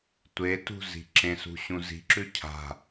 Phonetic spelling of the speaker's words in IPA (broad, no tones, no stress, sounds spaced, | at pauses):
tʷ e t ṳ z i̤ ǁ ẽ s ṳ ɕ ũ z i̤ ǁ ʉ cʰ a̤